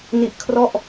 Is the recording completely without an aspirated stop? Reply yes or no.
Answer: no